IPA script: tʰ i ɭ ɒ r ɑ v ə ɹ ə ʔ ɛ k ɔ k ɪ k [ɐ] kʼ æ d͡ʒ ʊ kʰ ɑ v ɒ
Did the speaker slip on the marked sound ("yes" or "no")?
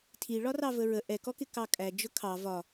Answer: yes